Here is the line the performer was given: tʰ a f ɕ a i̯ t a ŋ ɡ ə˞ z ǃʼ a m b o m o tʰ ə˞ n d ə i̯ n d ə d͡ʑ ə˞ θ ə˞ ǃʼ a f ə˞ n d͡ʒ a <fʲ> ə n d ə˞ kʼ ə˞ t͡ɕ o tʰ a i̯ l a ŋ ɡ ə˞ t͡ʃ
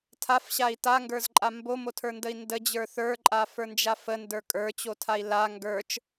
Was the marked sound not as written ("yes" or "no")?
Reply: yes